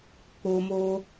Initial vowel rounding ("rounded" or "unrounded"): rounded